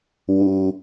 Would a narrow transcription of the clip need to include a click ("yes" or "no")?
no